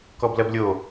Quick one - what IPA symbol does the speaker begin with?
k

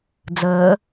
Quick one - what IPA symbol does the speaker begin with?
d͡z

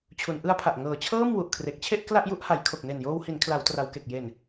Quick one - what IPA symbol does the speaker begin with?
t͡ɕʰ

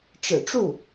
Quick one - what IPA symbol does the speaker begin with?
ʈ͡ʂ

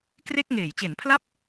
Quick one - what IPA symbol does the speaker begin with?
k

